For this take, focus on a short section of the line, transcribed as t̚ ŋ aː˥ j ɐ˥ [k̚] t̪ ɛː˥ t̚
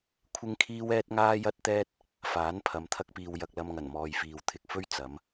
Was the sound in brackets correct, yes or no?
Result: no